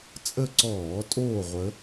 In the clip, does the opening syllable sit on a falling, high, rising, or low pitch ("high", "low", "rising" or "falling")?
falling